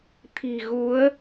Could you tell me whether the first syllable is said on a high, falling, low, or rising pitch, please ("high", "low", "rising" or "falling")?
low